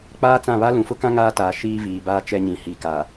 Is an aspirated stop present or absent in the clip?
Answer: absent